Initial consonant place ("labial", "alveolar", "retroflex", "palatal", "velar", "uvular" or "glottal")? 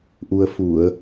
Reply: glottal